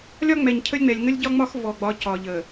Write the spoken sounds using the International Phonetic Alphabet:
lʲɒ˦ŋ͡mɛ˨ɲcʰə˦lʲŋ͡mɛ˨lʲ ŋə˦lʲɟɒ˦ ŋ͡mɒ˦x vɔ˨ɡ͡bɒ˨˦ cɒ˨ʎə˨

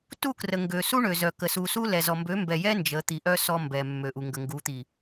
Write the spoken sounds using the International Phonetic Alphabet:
tu˦˨krə˨ ŋɡø˨su˦ɳø˨zœ˨ kə˨su˨su˦ lɛ˨zɔ˨ mbø˨˦mbɛ˨jɛ˦ nd͡ʒə˨˦t̪i˨ʔœ˦ sɔ˦mbɛ˨mːø˨ʔu˨ ŋɡə˨ŋɡu˨˦t̪i˨

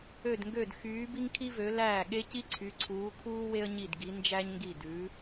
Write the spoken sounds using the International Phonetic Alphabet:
ø˥˩dŋɡø˥˩d xyː˨˥ bi˥ŋkʰi˥vø˨˥ læː˥˩ɠe˥ ci˥ǀʰy˨˥ǀʰuː˨˥kʰuː˥ we˥ə̯ɲi˥˩dɡi˨˥ nd͡ʒæ˥ɲŋɡi˥˩ dʉ˨˥

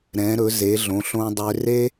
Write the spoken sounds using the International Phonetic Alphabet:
ɾɛ̃˨˦ɾɵ˨˦ ze˨˦ɮõ˨˦ɬõ˦dˤø˦ re˦

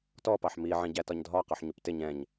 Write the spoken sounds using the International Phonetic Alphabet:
tɔpɑħ miʕĩɟætɒɲ dʱɒ qɔħɲuptɪ ɲɛ̃ɲ

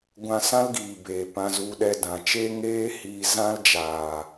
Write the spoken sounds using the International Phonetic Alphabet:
ɡʷã˧sã˦lɡiː˨ beː˨pã˧zu˧ɗɛ˧ dã˨t͡ʃeː˦ŋeː˦ hiː˧zã˦ld͡ʒaː˨

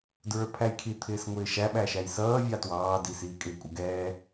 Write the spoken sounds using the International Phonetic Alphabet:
dɹə˞pʰæjkʰi t̪ʰɪːsŋʷɪːʃæ ɓæʃæjsʌː vʲɑtwɑː disiːkʼɪ kʷʼəɡɛː

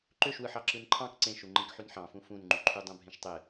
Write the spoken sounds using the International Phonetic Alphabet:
ǃøʃwɯħɑ ǁɯnǃʰɑ̃k ǀẽʃu ŋ͡ǃĩkħynħɑ̃fũ fũnŋ͡ǃyǃʰy dˤũbʱẽʃtˤe

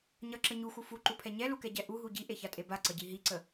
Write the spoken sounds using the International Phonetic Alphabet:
ɲʌǁə ɲuxu fuǃupʰɛ ɲɛlukɛɟɛ ʔuɦu ɟiʔeçatʼe baǀʌɟi ɦiǀə

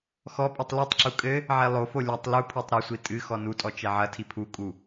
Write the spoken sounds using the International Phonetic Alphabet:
xɔpʼɨtˤ litˤǁu kʼɘ | ʕelˠofo lʲɐtˤ lupʰotˤ ɾɘsʷi tʼɨ xɔnutʼɔ t͡ʃɛʕɐtʰi pʰukʼu

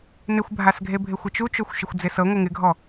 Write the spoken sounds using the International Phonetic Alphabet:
nɪxʷbʱasɡʱebʱɪ xʷɪt͡ʃut͡ʃoxʷ ʃɪxʷd͡zɪsɤ ŋʷɪŋɪɡʱɔ

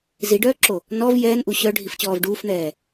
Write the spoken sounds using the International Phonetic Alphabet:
ziɖœːǁo | nɔv jɛːnʔu ɕœɖʱift͡ɕɔːv ɖuːfn̪ɛː

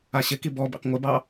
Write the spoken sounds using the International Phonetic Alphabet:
aɕɪki bɔbḭq ŋʷɪbɑ

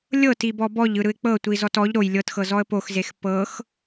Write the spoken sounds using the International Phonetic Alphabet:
lʲɤti bɔbɔʎɯ ɾɯɪ̯k͡pɤ tʷizɔtɔʎ ɾoj lʲɤtxɤ zɔə̯poxzex pɤx

